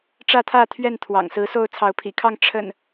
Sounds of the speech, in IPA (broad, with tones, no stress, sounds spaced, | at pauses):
ʈ͡ʂ ä˥˨ t̪ʰ ä˥˨ t̪ʰ ɥ ɛ˥˨ n t̪ʰ w ɑ̰˨˩ ŋ s ɹ̩˨˦ s o˥˨ ʊ̯ t͡sʰ ɑ˨˦ ʊ̯ pʰ ḭ˨˩ kʰ ɑ˥˨ ŋ ʈ͡ʂʰ ə̰˨˩ n